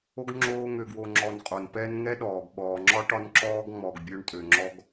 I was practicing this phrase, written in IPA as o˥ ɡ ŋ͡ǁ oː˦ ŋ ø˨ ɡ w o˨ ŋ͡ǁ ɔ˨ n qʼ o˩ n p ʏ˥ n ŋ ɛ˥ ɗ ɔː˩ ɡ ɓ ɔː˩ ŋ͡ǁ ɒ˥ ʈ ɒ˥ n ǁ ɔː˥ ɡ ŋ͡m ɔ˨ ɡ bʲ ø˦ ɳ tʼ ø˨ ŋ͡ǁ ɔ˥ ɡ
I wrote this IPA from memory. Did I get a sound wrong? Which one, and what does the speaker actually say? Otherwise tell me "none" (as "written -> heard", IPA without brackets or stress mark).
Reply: ʏ˥ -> ɛ˥